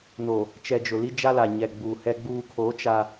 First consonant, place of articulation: alveolar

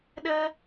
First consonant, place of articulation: alveolar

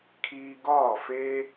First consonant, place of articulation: velar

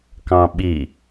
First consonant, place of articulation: velar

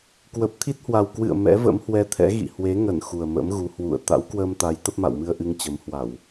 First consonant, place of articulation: velar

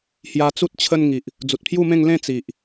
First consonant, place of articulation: glottal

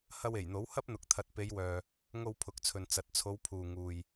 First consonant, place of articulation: glottal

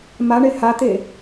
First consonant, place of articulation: labial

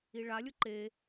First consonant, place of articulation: retroflex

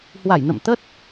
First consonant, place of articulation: glottal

